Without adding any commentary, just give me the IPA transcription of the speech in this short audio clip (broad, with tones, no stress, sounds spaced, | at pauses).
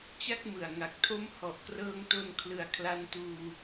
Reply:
t͡ɕ a˥˩ k̚ m ɯ˨˩ a̯ ŋ a˨˩ k̚ tʰ o˦˥ m h ɔ˨˩ ʔ k r ɤː˧ ŋ t o˧ n kʰ l ɯ˨˩ a̯ kʰ l a˧ n t uː˧